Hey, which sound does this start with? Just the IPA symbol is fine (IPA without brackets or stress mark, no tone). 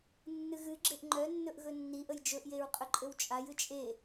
nː